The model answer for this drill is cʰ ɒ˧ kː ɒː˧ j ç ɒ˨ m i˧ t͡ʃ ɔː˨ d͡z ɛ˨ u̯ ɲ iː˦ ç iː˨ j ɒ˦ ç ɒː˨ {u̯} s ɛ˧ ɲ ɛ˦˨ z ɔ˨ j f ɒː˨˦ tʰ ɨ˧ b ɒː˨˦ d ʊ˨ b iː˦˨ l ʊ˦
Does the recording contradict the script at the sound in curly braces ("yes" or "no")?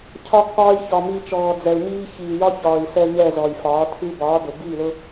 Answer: yes